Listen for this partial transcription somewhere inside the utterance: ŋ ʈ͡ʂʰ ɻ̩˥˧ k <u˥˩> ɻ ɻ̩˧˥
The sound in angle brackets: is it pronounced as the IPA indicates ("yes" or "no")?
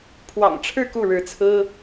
yes